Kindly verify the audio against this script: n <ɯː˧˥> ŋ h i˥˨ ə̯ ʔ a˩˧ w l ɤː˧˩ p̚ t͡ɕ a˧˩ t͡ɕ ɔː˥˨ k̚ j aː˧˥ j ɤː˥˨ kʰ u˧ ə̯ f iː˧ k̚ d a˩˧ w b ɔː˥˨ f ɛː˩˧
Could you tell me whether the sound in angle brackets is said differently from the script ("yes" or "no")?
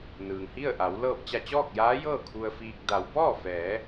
yes